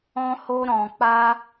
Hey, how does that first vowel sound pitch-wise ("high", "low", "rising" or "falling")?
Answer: high